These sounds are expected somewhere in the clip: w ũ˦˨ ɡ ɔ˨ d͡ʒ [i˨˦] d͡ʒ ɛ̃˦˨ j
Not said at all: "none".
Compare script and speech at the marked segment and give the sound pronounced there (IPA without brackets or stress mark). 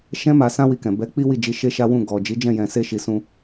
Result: i˨˦